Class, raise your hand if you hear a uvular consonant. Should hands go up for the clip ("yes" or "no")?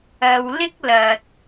no